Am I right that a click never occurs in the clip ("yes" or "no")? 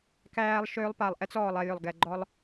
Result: no